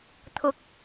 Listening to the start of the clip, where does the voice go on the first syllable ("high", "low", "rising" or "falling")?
rising